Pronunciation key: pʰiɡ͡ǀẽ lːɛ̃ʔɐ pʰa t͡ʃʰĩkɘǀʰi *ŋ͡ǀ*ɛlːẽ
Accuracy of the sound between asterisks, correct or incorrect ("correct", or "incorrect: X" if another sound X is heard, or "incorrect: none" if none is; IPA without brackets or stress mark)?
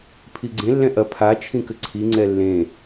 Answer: correct